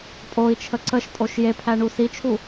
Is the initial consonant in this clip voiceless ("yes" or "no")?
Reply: yes